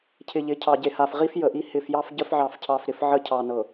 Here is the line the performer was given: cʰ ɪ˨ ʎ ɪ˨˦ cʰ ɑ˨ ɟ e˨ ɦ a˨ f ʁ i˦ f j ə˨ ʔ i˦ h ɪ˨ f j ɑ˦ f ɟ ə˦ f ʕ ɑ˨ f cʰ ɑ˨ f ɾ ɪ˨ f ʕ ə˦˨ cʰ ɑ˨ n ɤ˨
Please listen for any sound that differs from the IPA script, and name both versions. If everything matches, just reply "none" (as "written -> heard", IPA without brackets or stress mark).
ɦ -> h